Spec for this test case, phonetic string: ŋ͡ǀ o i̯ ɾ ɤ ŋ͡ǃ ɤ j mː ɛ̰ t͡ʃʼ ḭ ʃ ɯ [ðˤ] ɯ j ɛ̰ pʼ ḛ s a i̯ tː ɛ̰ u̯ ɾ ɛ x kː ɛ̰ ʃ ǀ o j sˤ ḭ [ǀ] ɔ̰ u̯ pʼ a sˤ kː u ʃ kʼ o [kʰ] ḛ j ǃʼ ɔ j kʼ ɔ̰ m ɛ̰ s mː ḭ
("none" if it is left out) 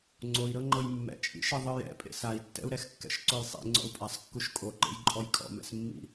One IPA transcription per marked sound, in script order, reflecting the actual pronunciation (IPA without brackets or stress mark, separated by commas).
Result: ðˤ, ŋ͡ǀ, ǃ